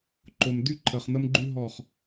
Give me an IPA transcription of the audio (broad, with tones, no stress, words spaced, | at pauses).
ǃo˨mdy˦ ǃʰə˨χn̪ə˦mɡ͡ǃy˦ɦɔ˦˨χ